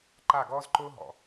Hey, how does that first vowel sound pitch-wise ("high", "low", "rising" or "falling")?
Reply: falling